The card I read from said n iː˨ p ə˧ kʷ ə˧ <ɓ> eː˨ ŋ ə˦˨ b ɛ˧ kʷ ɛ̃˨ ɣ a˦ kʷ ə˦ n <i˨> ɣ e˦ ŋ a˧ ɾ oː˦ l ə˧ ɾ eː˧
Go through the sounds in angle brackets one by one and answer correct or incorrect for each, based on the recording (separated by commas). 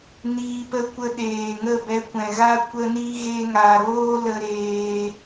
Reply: incorrect, incorrect